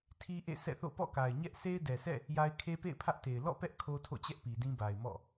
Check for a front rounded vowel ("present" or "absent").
absent